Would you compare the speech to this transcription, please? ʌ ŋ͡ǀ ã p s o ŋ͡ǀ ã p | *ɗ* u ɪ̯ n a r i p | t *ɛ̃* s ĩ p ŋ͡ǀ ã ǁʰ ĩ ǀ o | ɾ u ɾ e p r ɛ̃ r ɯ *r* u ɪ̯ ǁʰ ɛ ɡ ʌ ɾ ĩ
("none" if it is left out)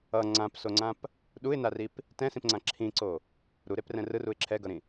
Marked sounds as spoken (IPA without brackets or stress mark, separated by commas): ɗ, ɛ̃, r